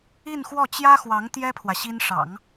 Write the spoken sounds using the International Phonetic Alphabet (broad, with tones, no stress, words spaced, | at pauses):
i˥˧nxwɔ˥˩ t͡ɕjä˥xwɑ˧˥ŋ t̪jɛ˥pʰwä˨ ɕi˥nʂɑ̰˨˩˦ŋ